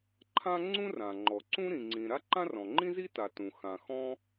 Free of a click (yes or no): no